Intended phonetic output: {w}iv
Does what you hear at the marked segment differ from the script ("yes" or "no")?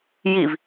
yes